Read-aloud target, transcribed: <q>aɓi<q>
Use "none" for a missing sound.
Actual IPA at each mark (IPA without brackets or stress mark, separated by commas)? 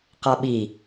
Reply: q, none